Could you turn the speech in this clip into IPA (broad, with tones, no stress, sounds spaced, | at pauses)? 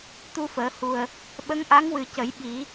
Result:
t̪ u˧ f əː˨˩˦ h u˨˩ ə̯ | ɓ ə˧˥ ŋ ʔ a˧˥ ŋ w ɨ˨˩ c ə˨˩˦ j ɓ i˨˩˦